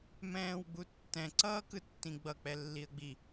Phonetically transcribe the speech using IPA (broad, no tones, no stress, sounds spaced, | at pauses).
m ɛ̃ː w ɡ͡b u tː ɛ̃ ǀ ʌː k ɯ tː ĩ ɡ͡b ʌ k͡p ɛ lː i ə̯ ɡ͡b i